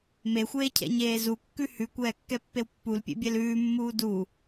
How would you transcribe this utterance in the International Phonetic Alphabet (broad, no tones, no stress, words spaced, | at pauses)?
mexʷeːcʰɛ̰ɲeː zukːʉ hʉkʷɛːkːɛpːew pːulpʲḛbʲɛl ʉːmːuː du